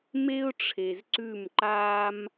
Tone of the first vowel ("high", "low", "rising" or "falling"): high